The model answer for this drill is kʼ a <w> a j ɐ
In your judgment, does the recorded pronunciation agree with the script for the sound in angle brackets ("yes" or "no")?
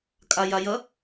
no